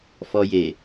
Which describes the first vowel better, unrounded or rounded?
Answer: rounded